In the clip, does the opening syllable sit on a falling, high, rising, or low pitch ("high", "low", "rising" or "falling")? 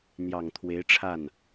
low